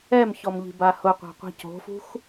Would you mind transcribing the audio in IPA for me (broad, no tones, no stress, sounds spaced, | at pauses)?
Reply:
ɛ m ç ɔ m ʎ i̤ b a h ʊ qʷ a̤ qʷ i̤ c o̤ f ṳ x